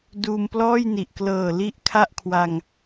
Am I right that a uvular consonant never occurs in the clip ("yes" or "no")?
yes